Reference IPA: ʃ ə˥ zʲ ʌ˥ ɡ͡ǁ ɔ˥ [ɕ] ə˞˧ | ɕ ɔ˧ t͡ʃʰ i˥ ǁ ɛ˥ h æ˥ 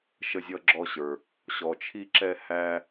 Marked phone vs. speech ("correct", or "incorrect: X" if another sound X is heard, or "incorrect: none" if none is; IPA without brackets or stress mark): correct